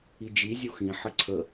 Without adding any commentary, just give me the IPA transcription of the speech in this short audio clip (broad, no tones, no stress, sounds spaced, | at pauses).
i d͡ʒ i zʲ o x ĩ ħ ə ǀʰ ə